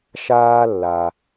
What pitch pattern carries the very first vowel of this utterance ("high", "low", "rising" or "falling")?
high